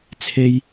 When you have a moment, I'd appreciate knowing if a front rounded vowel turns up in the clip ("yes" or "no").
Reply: no